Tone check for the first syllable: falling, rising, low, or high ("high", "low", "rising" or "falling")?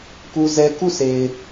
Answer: high